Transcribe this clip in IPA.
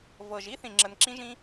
v ɤ˨˩ ʒ i˦˥ θ ĩ˨˩ ŋ͡ǁ ə˨˩ n ǁ ĩ˦˥ ʒ ĩ˦˥

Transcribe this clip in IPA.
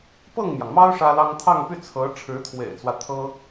p ɤ˥˩ ŋ m j ɑ˩ ŋ m ɑ˥ ʊ̯ ʂ ä˥ l ɑ˥ ŋ t̪ʰ ɑ˥˧ ŋ p y˥˩ t͡sʰ ɤ˧˥ ʈ͡ʂʰ ɻ̩˧˥ t̪ʰ w ḛ˨˩ ɪ̯ t͡s w ä˦ t̪ʰ ɤ˥

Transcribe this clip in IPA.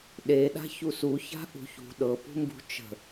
ɗ e ɗ a̤ ç u s u ç a̤ ʔ ṳ ç ṳ ɗ ɤ p ṳ m b ṳ t͡ʃ ə̤

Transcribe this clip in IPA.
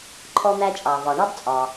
ǃʰ ɔ˥ n̪ æ˥ t͡ʃʼ ɑ˩ v ɒ˩ ɳ ɑ˥ b t͡sʼ ɒ˩

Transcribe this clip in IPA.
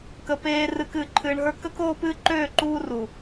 k ə˨ p eː˨ r ɨ˨ k ɨː˨ ǃʰ ɨː˨ ɳ ɦ ə˞˦ k ə˦ k oː˦ p ɨː˦ ǃ øː˦˨ ǃ uː˦ r u˨

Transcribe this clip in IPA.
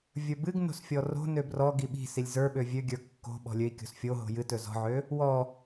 vʲ ə˞ b ɨ ɡ n o̤ s fʲ ɔ r o̤ n ø b r ɔ ɡ i ɓ i̤ s i lʲ z ə˞ ɓ ø vʲ ø ɡʲ ə˞ kː o̤ ɓ ɔ̤ lʲ ø i̯ kʲ o̤ s fʲ o ɦ o̤ j ɨ t ɵ z ɔ̤ ʕ ø | w ɔ

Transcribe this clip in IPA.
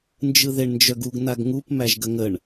n d͡ʒ ɯ ð e ɳ n d͡ʒ œ ɡ u ɡ n a ɡ ŋ u p m æ ʒ ɡ ə ŋ ə ɳ

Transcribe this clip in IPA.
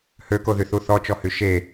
h ø k o ð y θ u θ ɔ t͡ʃ ɔ h y ʃ e

